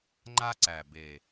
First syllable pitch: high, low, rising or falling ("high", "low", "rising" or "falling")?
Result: high